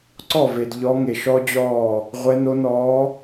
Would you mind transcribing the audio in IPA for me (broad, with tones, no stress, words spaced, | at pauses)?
ǀɔ˥˩ve˨d ʎɔ˧˥ŋe˨ʃɔ˥d͡ʑɔː˥˩ | ʁʷɛ˧˥ no˧˥nɔː˧˥